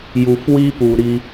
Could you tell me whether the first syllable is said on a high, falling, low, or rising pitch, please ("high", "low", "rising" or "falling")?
low